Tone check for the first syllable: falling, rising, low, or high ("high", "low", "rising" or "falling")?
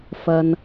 high